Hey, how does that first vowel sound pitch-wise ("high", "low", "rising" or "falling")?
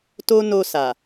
high